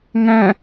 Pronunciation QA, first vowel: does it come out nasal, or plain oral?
nasal